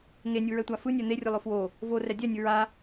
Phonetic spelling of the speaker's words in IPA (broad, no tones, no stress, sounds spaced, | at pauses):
ŋ e nʲ u ɹ ɛ tʷ a f ɯ nʲ ɛ n̪ e rʲ ɯ lˠ o f w o | v o r ɛ dʲ ɛ nʲ ɯ ɹ a